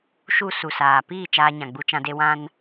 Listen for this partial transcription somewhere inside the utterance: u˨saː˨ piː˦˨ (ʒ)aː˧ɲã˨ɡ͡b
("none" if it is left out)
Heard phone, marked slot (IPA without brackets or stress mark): t͡ʃ